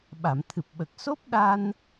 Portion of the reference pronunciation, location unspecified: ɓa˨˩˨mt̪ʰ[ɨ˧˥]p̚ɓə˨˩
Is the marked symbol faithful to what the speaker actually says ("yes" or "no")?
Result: no